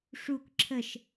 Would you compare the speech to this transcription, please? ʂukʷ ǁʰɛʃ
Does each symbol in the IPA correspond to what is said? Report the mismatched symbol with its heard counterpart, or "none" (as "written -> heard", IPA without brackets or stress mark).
ɛ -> ə